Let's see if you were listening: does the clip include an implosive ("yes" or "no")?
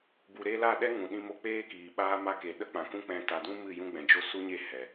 yes